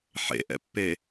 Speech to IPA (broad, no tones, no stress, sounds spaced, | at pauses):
ħ ḛ ʔ ɛ̰ pː e